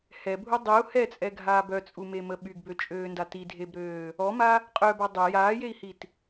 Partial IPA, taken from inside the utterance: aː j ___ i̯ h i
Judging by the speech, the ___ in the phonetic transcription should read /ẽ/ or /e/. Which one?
e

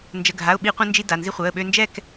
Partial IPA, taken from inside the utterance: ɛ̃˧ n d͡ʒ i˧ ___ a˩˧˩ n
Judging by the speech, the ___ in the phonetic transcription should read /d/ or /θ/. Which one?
d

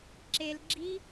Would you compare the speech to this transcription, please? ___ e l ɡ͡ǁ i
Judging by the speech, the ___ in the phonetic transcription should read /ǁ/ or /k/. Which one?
ǁ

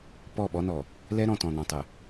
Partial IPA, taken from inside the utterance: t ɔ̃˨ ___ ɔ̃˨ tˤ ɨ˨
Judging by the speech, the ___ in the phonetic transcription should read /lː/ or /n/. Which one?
n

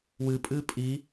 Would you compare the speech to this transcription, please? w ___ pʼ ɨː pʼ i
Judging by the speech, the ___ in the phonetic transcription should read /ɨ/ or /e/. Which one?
ɨ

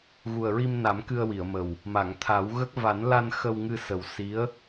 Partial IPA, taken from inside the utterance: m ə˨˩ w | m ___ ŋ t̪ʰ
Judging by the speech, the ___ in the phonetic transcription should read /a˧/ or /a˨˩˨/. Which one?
a˨˩˨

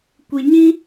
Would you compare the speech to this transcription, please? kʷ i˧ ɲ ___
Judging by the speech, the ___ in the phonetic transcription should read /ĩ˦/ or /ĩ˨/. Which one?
ĩ˦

